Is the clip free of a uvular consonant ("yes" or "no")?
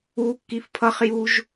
no